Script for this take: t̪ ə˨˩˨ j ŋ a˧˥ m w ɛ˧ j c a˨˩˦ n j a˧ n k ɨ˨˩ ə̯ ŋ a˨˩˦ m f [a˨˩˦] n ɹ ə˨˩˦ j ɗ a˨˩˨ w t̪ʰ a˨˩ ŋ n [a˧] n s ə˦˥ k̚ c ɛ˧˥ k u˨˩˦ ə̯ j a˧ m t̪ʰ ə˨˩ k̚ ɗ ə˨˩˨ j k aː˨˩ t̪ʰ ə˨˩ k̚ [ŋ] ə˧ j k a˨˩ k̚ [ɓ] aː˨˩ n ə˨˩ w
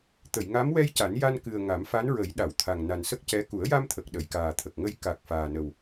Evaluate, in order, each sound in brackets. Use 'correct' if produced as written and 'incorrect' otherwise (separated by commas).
incorrect, incorrect, correct, incorrect